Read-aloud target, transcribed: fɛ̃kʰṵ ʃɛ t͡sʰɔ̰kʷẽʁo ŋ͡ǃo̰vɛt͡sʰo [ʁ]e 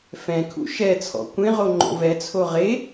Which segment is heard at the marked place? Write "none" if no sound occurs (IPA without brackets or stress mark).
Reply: ʁ